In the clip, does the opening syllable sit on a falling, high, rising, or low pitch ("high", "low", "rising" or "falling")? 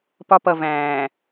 high